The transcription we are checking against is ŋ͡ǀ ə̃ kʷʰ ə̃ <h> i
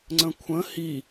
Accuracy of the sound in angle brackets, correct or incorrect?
correct